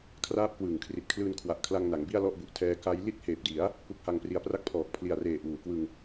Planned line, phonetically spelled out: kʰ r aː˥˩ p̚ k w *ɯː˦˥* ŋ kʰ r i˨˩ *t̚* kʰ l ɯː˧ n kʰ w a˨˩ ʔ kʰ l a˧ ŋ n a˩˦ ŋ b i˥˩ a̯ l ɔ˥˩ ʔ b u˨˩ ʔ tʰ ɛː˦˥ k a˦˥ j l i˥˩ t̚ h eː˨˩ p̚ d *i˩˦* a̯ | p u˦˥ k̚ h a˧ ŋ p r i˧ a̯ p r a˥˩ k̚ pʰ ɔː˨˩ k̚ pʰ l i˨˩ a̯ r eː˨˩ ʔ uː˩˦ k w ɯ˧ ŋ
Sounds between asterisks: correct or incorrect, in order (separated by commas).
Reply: incorrect, correct, correct